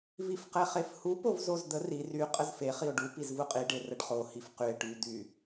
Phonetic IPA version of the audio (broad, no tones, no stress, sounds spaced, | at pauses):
v i f q ɛ χ e f h u p o v z o z d̪ ə r i r y qʼ ə z f e χ i o̯ ɖ u p i z v u qʼ i ɖ e r ə ɖ χ o h i f q y e̯ ʈ y d̪ y